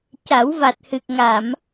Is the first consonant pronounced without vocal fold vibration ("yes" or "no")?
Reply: yes